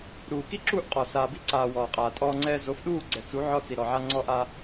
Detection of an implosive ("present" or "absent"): present